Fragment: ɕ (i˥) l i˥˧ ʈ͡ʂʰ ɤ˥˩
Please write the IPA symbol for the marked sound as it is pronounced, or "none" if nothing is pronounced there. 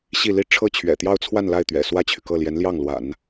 i˥˧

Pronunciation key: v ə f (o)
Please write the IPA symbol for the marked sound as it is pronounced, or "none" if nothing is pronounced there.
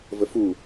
u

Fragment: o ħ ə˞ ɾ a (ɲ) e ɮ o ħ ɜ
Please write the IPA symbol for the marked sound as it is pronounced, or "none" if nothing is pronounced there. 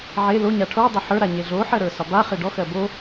ɲ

